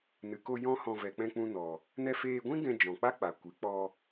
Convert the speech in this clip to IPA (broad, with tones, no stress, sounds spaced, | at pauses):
n ɨ˨ k o˧ j ɔ̃˦ h ɔ̃˧ v ɛ˨ k͡p ɛ̃˧ k͡p ũ˧ n ɔ˨ | n ɛ˧ f eː˧ ɡʷ ĩ˦ ɡ ɛ̃˧ d͡ʒ ɔ̃˨ k͡p a˦ k͡p a˨ kʷ ɨ˨˦ k͡p ɔ˧